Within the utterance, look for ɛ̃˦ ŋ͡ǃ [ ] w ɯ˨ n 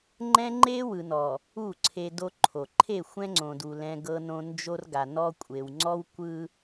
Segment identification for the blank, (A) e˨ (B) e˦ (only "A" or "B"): B